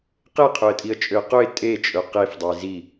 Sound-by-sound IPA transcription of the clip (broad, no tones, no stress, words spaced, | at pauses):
qeqʰɵə̯tʼiə̯t͡ʃʼøə̯ qɵɪ̯ tʼet͡ʃʼɵ qefdˤe zi